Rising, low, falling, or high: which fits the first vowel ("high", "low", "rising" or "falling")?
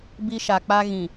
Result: high